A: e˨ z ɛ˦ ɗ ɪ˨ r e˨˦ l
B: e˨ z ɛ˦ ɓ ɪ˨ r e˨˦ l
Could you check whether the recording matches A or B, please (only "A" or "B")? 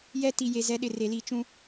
A